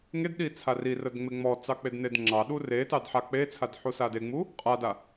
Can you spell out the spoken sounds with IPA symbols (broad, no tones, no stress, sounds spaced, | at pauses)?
ŋ e d ɗ i t͡sʰ a r i r ə d ŋ͡m e ŋ͡m ɔ t͡s ɑ k͡p e d n e d ŋ͡ǁ ɑ ɗ u r e t ɑ d ħ a k͡p e t͡sʰ a d ħ u s a d e ŋ͡m u | qʼ a d a